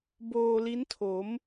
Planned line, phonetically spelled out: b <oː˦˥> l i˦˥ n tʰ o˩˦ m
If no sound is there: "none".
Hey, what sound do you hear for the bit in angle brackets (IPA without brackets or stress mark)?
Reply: oː˧